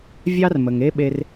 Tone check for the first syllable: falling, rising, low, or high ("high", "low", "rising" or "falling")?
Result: high